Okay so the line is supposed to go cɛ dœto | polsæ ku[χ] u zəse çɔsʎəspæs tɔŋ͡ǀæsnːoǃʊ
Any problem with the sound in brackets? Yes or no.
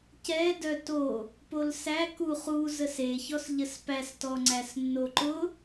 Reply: no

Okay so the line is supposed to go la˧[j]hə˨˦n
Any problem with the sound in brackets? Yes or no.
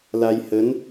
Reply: no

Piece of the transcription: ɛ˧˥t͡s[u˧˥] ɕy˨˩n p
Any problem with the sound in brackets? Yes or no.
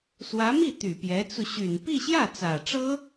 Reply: yes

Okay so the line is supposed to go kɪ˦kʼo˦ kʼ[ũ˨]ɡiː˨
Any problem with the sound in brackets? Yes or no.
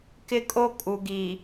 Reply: yes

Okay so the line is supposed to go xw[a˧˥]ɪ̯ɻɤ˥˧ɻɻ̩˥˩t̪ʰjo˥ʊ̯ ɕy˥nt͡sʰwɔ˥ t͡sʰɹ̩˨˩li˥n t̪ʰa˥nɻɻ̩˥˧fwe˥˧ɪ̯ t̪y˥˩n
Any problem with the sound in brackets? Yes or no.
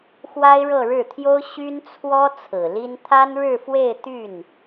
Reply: yes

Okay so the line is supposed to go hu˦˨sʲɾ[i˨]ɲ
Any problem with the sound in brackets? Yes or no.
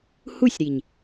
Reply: no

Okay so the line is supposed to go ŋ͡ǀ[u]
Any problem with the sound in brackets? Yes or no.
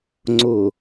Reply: yes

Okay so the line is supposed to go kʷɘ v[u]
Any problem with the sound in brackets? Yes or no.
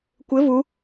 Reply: no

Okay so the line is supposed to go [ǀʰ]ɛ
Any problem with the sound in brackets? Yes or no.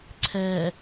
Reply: no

